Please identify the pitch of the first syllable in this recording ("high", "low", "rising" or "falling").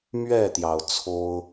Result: falling